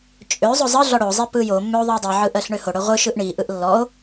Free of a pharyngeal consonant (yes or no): no